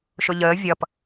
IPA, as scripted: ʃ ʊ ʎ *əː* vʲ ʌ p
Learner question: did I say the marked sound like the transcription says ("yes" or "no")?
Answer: yes